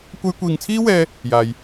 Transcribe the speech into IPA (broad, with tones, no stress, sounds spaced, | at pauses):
kʷ ɐ˧ j kʷ iː˨ ŋ t͡sʰ iː˥ w ɛː˧ | j aː˨ j